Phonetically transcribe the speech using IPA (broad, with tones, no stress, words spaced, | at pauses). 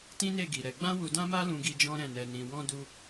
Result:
tĩ˦ne˦˨ɡi˨ ɾɛ˧ ɡ͡bã˦wu˧dã˦ma˦ lũ˦ɡi˦ d͡ʒɔ̃˦ɾɛ̃˦˨nɛ˧nĩ˧ wɔ̃˦du˦